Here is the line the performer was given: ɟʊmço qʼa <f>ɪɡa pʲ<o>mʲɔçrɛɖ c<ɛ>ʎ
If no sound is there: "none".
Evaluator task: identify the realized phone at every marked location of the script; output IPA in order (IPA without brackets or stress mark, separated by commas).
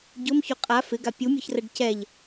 f, u, ɛ